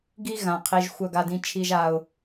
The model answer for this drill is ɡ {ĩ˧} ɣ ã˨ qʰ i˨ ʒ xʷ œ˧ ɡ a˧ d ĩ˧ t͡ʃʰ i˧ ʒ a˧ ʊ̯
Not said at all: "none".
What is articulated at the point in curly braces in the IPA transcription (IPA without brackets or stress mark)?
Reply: i˧